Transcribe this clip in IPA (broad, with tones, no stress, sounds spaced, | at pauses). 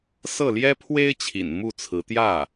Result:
s ɤ˥˩ l j ɛ˥ pʰ w e˥ ɪ̯ t͡ɕʰ ḭ˨˩ n m u˥˩ t͡sʰ ɹ̩˧˥ t̪ j ä˥˩